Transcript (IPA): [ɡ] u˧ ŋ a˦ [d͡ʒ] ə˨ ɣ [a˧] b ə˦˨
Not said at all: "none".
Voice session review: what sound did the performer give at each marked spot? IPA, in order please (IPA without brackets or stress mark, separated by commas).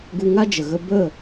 ɡ, d͡ʒ, ə˧